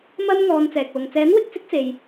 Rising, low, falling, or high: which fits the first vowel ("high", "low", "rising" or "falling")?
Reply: high